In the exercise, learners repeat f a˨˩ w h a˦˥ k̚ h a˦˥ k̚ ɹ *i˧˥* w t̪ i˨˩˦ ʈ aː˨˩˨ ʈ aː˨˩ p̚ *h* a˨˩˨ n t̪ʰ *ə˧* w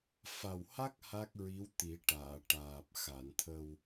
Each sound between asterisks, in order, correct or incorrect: correct, incorrect: x, correct

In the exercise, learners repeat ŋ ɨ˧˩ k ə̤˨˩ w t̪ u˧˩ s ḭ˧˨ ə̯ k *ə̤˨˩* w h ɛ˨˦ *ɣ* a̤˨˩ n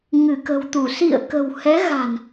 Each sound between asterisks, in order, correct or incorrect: correct, correct

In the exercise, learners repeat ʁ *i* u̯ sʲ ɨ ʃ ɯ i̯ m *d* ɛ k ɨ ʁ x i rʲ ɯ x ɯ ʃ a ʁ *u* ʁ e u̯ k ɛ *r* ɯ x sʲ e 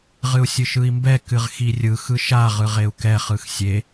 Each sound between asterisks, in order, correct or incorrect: incorrect: ɨ, incorrect: b, incorrect: ɯ, incorrect: χ

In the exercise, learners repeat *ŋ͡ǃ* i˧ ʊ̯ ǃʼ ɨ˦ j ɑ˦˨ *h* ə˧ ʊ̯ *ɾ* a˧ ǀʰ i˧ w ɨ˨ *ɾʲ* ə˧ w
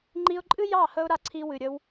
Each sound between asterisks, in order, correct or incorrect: correct, correct, correct, correct

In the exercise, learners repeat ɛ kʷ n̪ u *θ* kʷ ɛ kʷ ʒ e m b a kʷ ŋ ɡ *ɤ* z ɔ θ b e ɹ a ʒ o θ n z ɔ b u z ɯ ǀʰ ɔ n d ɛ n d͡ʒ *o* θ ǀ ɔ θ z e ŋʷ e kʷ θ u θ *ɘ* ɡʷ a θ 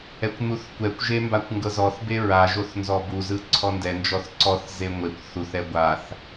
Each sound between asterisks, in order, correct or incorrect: correct, correct, incorrect: ɔ, incorrect: ɛ

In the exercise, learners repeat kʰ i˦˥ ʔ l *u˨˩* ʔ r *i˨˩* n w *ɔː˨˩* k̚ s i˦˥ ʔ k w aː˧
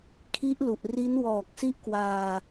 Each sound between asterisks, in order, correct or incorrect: correct, incorrect: i˦˥, correct

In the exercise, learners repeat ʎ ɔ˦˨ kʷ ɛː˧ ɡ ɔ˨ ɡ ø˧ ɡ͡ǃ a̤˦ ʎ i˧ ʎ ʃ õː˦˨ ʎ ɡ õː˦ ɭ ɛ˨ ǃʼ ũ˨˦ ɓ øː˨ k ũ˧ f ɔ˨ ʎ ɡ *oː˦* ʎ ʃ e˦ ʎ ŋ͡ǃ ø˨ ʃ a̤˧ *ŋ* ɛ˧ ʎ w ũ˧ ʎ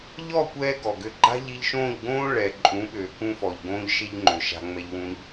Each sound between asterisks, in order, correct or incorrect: incorrect: õː˦, incorrect: ŋ͡m

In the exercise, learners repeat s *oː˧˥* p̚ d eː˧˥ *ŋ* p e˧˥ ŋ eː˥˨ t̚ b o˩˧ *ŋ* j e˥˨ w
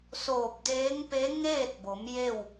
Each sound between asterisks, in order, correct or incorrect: incorrect: oː˧˩, correct, incorrect: m

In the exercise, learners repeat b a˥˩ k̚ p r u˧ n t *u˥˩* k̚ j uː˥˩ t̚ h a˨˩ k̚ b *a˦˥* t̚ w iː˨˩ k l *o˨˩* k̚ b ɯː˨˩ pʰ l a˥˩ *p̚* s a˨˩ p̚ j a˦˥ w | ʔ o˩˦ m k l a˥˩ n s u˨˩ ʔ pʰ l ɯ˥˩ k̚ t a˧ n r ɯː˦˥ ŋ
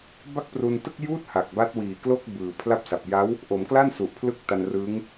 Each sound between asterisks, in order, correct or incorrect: incorrect: ɯ˥˩, correct, incorrect: o˥˩, correct

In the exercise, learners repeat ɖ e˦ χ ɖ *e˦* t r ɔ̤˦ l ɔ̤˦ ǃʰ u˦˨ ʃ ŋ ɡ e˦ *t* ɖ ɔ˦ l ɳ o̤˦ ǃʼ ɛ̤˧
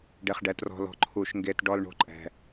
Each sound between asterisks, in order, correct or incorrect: incorrect: ɛ˦, correct

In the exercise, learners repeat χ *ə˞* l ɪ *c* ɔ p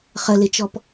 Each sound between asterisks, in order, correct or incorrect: incorrect: ə, incorrect: t͡ʃ

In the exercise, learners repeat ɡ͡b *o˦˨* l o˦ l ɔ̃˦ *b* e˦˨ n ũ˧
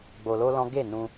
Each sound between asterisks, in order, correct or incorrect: incorrect: o˧, incorrect: ɡ

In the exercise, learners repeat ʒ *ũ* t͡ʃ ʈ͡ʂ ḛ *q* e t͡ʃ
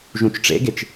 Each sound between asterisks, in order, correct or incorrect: correct, incorrect: ɡ

